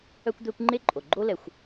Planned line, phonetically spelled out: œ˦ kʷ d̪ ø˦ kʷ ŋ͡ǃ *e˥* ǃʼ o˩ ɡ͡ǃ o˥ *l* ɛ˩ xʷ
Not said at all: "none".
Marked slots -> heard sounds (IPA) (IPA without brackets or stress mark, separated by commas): e˥, l